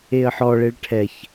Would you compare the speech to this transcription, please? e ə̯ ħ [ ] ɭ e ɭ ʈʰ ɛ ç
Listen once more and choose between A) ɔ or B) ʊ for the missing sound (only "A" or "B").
A